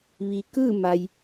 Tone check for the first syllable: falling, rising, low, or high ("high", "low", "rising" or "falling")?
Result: low